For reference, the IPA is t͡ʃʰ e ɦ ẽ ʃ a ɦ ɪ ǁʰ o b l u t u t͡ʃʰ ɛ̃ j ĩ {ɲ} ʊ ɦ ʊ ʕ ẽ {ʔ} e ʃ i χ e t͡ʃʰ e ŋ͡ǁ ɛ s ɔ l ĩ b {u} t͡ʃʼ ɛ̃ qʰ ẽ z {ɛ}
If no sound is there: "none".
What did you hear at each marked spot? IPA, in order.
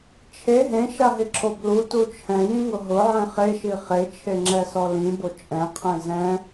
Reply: ŋ, χ, o, ɛ̃

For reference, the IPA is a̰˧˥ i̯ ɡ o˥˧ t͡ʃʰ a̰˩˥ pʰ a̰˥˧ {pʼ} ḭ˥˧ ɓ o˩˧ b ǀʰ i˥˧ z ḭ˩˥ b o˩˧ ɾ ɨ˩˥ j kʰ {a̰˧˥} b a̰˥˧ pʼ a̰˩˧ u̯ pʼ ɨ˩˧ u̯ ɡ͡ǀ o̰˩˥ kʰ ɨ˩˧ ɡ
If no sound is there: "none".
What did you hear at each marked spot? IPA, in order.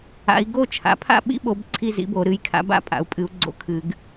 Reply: ɓ, a̰˧˥

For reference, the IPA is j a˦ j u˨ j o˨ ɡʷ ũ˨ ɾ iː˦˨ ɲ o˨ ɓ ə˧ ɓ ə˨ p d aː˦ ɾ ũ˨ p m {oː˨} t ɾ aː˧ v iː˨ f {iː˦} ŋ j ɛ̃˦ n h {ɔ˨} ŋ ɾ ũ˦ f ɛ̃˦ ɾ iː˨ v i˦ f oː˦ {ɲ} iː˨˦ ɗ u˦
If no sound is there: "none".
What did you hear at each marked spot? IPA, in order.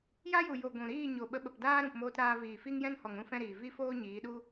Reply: oː˧, i˦, ɔ˨, ɲ

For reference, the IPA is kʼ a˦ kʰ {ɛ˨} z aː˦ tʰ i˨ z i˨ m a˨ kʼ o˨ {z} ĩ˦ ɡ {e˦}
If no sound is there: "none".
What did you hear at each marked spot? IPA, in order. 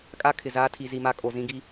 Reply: ɪ˨, z, i˦

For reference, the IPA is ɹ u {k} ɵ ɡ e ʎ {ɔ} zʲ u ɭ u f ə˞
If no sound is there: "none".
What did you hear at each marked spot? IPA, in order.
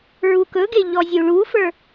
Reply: k, ɔ

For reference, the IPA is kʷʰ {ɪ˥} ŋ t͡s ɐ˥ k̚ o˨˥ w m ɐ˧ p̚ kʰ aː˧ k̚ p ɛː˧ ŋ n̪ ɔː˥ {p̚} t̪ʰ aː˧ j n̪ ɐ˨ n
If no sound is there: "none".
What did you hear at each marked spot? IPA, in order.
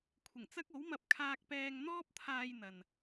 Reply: ɪ˨˩, p̚

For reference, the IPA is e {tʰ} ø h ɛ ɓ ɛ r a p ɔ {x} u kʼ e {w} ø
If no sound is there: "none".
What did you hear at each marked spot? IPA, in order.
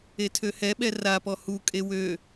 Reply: tʰ, h, w

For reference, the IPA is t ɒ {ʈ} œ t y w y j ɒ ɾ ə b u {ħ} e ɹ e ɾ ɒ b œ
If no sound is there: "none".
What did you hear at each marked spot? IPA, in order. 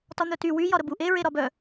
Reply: n̪, ʔ

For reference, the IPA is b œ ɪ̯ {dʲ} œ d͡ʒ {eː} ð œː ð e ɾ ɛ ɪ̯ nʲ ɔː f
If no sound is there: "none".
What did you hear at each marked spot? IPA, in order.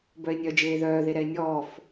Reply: nʲ, eː

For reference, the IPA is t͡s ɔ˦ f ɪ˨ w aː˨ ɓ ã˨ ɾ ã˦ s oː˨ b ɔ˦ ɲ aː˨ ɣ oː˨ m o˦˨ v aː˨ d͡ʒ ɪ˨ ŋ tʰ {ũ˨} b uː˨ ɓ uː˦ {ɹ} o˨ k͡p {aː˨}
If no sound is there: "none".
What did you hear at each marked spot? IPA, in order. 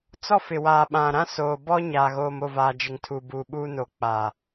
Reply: u˨, n, aː˨

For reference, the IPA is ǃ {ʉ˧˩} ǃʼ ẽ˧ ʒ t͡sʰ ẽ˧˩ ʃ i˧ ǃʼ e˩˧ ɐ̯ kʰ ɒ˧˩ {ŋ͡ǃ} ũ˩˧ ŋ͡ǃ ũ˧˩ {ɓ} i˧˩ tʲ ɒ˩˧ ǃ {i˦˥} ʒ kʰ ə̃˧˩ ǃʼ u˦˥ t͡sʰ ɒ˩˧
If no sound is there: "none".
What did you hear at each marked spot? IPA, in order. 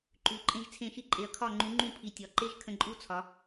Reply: ʉ˩˧, ŋ͡ǃ, pʰ, e˦˥

